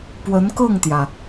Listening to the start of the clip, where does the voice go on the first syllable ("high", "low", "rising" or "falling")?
rising